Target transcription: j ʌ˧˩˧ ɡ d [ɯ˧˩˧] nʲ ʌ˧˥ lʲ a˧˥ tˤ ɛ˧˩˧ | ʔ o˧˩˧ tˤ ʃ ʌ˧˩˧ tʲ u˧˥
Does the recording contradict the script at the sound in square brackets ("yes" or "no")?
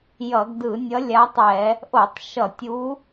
no